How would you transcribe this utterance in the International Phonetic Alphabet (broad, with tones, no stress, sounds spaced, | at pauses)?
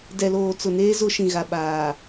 d ɛ˨ l oː˨ t͡s ʊ˨ n eː˦ z ʊ˦ ʃ ĩ˨ ɣ a˨ ɓ aː˨